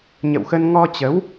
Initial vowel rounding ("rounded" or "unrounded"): unrounded